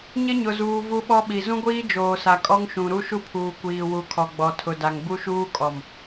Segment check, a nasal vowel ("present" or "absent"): present